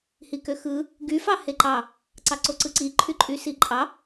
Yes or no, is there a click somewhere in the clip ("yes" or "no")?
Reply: yes